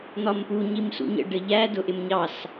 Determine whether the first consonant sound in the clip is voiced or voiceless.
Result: voiced